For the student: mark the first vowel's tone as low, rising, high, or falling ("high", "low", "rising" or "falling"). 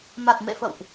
low